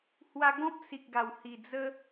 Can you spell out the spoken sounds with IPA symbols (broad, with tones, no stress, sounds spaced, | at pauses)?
h w a˧ ɡ ɔ̃˦ p̚ s i˨ k̚ ɡ a˨˩ w h i˨˩ d͡z ə˦